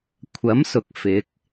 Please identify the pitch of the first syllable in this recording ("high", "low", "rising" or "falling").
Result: rising